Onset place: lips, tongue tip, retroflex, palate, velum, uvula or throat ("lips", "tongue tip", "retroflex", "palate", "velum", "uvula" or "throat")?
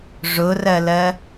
retroflex